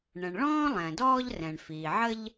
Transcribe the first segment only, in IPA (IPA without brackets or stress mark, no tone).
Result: ɳ